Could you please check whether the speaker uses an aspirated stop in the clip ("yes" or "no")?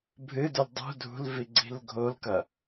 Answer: no